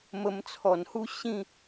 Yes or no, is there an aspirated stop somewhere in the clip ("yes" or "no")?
yes